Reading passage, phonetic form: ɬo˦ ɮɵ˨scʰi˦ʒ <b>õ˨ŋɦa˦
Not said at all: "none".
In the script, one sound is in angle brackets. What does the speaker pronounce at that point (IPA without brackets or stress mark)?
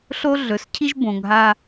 b